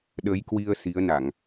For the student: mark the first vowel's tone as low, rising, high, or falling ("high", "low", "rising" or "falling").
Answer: rising